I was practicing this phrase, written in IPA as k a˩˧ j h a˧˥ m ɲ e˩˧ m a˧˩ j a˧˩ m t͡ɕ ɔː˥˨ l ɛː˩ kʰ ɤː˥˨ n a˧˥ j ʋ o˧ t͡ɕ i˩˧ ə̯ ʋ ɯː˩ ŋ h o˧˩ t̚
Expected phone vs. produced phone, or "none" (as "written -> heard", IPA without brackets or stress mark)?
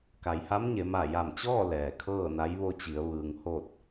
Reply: none